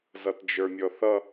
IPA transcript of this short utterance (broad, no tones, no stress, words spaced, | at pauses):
zʌtd͡ʒə˞mʲɔθʌ